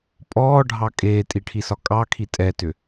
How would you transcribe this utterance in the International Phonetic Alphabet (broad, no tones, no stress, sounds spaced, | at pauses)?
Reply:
pʼ ɔː ɖʱ ɑ kʼ eː tʼ i ʈʰ i s ɒ kʼ ɑ kʰ i tʼ ɛ t ʏ